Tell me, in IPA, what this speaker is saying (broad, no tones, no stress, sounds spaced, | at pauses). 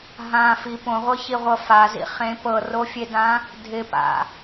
ɦ ã f i p õ ʁʷ ɤ ç i ʁʷ ɤ f a z ḭ χ ẽ p ɤ r o fʲ e d ã | dʱ ɪ p a̰